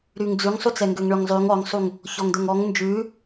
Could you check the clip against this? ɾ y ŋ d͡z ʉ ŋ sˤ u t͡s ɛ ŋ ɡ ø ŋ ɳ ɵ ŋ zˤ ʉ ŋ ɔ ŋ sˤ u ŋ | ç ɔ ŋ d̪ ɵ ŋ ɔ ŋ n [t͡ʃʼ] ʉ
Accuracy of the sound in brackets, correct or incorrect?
incorrect